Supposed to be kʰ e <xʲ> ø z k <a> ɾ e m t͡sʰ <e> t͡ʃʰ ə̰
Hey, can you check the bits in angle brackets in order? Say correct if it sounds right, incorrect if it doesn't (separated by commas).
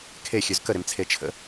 correct, incorrect, correct